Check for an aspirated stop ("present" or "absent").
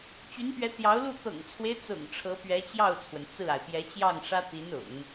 present